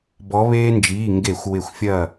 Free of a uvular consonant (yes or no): yes